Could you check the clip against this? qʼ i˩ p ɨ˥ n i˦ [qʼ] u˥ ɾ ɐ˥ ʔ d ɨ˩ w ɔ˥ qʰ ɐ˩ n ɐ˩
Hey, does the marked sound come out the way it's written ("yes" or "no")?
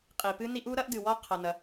no